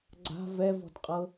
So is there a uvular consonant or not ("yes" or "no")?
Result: yes